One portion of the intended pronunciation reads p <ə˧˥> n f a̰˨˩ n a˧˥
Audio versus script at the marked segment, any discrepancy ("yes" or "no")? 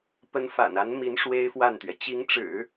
no